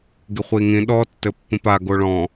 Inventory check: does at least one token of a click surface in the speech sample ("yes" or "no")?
no